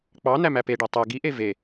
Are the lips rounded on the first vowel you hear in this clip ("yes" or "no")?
no